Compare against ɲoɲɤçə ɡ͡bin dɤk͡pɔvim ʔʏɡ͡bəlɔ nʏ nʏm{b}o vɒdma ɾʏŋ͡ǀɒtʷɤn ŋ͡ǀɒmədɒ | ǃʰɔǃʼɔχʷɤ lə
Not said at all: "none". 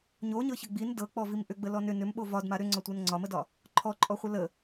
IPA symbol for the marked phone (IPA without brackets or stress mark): ɓ